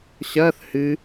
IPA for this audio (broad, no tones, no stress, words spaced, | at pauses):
ɕɐːθ hɨ